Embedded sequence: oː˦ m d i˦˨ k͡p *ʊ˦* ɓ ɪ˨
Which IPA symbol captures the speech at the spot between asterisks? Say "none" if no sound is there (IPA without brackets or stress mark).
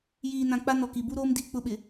ʊ˦